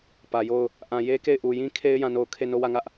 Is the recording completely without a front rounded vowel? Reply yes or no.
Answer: yes